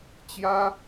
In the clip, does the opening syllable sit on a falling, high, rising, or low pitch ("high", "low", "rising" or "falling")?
high